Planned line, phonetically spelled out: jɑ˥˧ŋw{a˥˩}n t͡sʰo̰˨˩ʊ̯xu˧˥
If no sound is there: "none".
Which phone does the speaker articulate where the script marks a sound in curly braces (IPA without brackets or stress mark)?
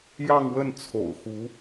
ə˥˩